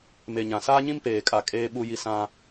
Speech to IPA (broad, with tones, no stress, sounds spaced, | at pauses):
m e˨ ɲ ã˨ s aː˦ ɲ ĩ˦ m p eː˨ kʼ a˨ kʼ eː˦ ɓ u˦ j i˦ s ã˦